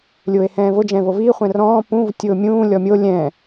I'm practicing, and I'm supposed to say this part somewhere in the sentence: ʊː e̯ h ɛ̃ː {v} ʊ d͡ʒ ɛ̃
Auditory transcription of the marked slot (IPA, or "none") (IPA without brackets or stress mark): v